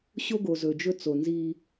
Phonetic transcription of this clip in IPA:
ɕo˦ɡo˨zɵ˨d͡ʒɵ˦ t͡so˨nzi˦

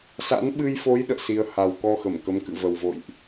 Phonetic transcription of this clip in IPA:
sa̰˧˥nɓɨ˧jfo˨˦j ɗə̰ː˧˨si˧ə̯ ha˨˩wkɔ˧ xə˧˩mkə˨˦m kɨ̰˧˨və˨˩wvo̰˧˨jʔ

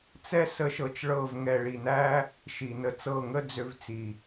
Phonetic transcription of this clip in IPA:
t͡sɛ˦ sə˦ʃɤ˧t͡ʃɭɤ˦˨v ŋɛ˨ɭi˨næ˦ | ʃi˨nə˧t͡sɤ˦˨ ŋə˦d͡zø˧vt͡si˨

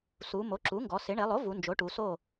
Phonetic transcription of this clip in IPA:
su˩˧mo˩˥ǁu˩˥ŋɡɔ˩˧ sɪ˩˧ɳe˩˧lˠo˩˥ vu˩˧nd͡ʒo˩˥ʈu˩˧so˥˨

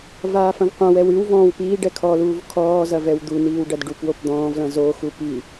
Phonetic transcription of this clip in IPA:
vaːfɐ̃vqʷɐ̃wɛw ɨwvɔ̃ːw piː ɖɛkʰɔluːv kʰɔːzɐ vɛwd̪uniːw ɖɐdɖupwop d̪ɔ̃ːvlɐ̃ zoxu pi

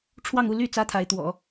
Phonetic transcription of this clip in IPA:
ʈ͡ʂʰwɑ˥˧ŋu˥˧ ly˥˩ t͡sä˥t̪ʰa˧˥ɪ̯t̪wɔ̰˨˩˦

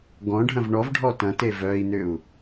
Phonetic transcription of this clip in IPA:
ɡɔ̃ɖʱɐ̃v ɳɔvɖʱɔ tɐ̃te vœi̯nʏu̯

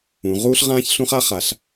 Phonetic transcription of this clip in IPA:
ũ˩˧ ʁuː˦ɬ ʁãː˦çɬũ˦χa˦χa˩˧ɬ

